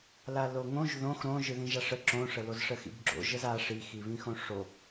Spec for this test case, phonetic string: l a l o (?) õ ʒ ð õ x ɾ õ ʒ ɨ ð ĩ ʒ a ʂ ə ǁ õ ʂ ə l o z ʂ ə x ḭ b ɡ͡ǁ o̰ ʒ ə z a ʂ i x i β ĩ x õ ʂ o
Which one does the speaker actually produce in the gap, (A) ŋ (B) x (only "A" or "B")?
A